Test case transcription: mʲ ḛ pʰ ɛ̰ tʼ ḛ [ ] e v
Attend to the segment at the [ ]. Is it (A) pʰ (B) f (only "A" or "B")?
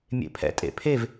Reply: A